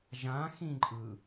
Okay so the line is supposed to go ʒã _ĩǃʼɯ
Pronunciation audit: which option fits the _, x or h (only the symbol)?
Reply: x